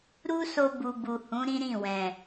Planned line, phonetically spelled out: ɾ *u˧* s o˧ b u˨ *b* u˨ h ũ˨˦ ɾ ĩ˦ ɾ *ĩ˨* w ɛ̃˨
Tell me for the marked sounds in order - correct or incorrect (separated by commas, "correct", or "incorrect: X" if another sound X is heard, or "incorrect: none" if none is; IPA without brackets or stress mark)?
incorrect: u˦, correct, incorrect: ĩ˦˨